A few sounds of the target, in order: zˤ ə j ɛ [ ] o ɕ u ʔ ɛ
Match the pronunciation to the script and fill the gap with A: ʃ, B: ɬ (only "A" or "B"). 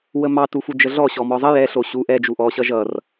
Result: B